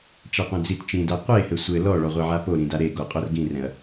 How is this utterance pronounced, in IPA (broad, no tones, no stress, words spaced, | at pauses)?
t͡ʃaqʷɛ̃d͡zit t͡ʃĩda qʷehɘ sʷɘ lɔ ɭɔʁʷeʕapo ɾĩdaɾe ɡoqʼorɡĩrɛ̃ɐ̯